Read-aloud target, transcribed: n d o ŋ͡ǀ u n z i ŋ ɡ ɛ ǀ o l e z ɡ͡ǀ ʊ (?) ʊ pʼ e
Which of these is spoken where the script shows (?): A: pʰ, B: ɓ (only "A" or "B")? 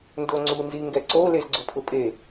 A